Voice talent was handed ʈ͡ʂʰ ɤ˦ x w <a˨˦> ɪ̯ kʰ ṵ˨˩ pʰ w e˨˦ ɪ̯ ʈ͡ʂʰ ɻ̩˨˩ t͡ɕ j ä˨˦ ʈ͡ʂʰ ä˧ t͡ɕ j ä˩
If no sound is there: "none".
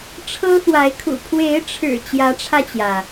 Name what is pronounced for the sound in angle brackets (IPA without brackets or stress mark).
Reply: a˨˦